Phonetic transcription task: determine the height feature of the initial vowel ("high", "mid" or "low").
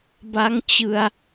low